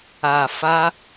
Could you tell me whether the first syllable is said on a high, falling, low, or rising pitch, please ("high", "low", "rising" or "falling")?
low